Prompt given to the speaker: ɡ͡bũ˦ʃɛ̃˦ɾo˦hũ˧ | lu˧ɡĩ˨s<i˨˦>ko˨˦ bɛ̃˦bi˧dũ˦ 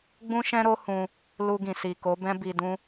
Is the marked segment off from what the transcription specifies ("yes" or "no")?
yes